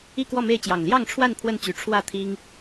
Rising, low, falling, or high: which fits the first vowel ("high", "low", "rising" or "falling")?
falling